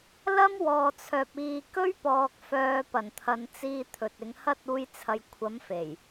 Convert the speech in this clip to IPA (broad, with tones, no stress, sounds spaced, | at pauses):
l ɐ˥ m w ɔː˨ t͡sʰ œː˨ p̚ iː˨ k ɵ˥ ɥ p ɔː˨ k̚ f œː˨˧ p ɐ˨˩ n t̪ʰ ɐ˨˧ n t͡s iː˧ t̪ʰ ɵ˨ t̚ ɪ˨˧ ŋ h ɐ˥ t̚ uː˥ j t͡sʰ ɐ˧ j kʷʰ ɐ˨˥ m f e˨˩ j